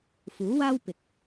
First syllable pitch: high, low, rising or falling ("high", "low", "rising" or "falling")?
rising